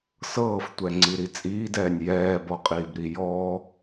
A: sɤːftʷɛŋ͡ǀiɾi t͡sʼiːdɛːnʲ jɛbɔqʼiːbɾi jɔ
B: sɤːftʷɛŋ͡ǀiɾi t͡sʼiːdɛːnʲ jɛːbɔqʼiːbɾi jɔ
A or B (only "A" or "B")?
B